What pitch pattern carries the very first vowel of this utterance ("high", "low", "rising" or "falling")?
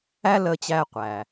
high